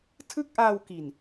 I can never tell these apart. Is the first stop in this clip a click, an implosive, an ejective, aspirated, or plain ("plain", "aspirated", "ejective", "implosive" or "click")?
aspirated